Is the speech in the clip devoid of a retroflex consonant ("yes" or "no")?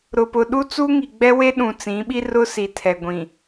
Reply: yes